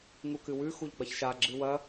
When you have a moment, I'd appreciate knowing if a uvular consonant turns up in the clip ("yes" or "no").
no